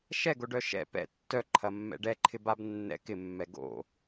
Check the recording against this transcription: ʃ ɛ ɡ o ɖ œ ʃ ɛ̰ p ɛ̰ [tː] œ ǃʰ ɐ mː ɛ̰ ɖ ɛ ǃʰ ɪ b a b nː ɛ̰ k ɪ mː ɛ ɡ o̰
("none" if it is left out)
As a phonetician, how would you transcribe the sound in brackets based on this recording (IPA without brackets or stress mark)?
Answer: tː